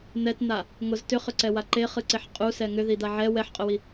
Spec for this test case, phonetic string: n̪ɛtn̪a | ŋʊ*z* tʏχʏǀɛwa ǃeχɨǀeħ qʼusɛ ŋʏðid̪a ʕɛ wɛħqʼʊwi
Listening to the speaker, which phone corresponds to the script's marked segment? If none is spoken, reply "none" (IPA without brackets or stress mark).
z